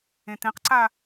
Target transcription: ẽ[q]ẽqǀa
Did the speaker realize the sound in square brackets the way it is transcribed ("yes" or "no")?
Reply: no